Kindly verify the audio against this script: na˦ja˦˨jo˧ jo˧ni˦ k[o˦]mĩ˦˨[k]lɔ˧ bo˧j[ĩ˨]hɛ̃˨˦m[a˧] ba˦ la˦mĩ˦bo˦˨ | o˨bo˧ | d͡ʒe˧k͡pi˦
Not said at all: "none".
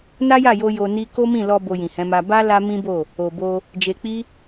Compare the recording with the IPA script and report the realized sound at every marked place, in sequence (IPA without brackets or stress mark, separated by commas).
o˦, none, ĩ˨, a˧